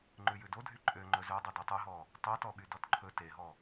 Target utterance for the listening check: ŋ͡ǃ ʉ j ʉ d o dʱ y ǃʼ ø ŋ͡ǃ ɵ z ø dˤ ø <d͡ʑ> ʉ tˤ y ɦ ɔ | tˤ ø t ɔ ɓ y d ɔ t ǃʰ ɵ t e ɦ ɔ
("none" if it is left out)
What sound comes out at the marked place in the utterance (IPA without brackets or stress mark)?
d